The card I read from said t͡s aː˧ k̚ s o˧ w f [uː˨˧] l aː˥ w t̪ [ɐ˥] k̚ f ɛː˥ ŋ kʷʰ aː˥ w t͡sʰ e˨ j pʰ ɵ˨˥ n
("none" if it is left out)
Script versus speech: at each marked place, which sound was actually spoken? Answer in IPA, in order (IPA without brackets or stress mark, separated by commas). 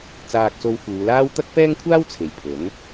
uː˨˧, ɐ˥